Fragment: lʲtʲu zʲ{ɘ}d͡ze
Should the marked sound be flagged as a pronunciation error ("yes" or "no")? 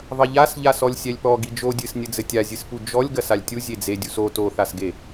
yes